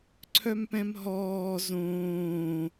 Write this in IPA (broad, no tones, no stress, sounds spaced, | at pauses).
ǀʰ œ m p ɛ̃ m ɦ ɔː z õː